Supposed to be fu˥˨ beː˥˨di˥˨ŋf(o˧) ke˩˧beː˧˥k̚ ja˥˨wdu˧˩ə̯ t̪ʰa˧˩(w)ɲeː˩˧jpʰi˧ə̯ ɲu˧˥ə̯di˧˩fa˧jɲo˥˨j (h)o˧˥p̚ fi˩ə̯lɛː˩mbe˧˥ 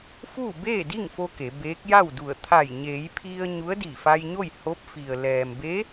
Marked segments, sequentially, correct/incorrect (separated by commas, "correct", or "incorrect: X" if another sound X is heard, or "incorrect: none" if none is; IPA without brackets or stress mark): correct, incorrect: j, correct